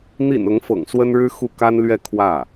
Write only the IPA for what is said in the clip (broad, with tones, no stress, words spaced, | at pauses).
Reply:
n̪ḭ˨˩n ʊ˧˥ŋfɤ̰˨˩ŋ swə˥nɻɻ̩˥ xu˥˩ka˥nlɥɛ˥˧ kʰwä˥˩